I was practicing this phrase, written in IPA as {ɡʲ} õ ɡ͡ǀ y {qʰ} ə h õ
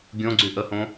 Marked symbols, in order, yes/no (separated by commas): yes, no